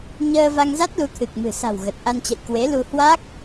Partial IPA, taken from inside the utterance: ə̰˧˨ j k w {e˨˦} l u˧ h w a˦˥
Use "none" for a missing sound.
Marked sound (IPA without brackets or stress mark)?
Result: e˨˦